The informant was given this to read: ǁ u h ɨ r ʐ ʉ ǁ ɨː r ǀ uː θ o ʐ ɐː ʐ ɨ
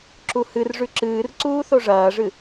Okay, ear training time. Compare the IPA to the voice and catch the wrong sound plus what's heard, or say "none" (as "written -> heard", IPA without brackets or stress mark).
none